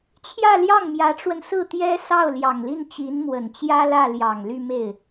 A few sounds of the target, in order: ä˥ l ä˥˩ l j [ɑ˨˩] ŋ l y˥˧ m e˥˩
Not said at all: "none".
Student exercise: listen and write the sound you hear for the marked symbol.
ɑ˨˩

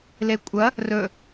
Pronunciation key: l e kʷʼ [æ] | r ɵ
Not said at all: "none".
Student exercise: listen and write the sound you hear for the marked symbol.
ɐ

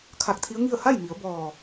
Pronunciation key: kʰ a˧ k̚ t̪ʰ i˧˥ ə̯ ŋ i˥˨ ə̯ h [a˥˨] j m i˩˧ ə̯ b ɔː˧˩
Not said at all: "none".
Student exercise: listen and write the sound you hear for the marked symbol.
a˥˨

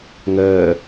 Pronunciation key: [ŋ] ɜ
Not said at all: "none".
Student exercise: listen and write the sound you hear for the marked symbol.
ŋ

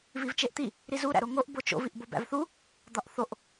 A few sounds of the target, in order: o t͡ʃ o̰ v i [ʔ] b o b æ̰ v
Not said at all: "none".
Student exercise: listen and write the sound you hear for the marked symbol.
ʔ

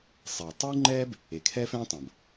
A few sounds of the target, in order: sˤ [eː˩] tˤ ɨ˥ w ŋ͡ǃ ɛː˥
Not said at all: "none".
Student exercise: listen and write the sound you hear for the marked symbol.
eː˩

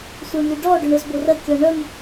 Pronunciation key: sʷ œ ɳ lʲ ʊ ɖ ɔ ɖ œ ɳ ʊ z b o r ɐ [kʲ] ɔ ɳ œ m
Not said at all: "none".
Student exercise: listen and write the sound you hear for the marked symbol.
kʲ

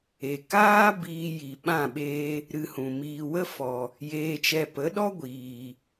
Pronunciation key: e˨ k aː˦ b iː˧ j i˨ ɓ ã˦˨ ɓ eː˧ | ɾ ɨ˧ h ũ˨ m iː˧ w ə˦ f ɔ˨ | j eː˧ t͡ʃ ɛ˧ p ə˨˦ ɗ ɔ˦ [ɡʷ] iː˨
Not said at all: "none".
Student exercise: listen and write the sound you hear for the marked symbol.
ɡʷ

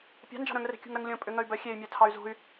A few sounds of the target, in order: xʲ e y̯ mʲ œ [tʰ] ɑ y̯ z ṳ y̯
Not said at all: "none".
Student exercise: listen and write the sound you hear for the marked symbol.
tʰ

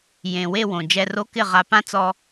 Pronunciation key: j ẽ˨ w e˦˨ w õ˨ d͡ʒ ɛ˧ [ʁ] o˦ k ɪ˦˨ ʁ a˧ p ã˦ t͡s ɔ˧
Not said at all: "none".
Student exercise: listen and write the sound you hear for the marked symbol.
r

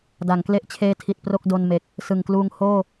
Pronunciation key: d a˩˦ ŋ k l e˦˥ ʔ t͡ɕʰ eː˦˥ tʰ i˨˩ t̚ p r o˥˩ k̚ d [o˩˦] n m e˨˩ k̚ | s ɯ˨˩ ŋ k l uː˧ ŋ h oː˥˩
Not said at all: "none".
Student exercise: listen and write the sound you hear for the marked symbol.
o˧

